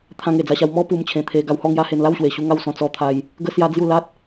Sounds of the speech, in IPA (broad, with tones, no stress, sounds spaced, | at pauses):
t̪ʰ ã˧ ŋ e˨˩ d͡z a˧ ɕ a˧ w m ɔ˦ p u˧ m t͡ɕʰ ẽ˨˩ t̪ʰ e˧ ɡ a˧ w h ɔ˥˧ ŋ j a˦ h e˧ n l a˥˧ w ɕ w e˨˩ ɕ u˧ ŋ a˥˧ w s ɔ̃˧ t͡s ɔ˧ t̪ʰ a˧ j | ɡ ə˧ s j a˦ d͡z j u˥˧ l a˦ t̚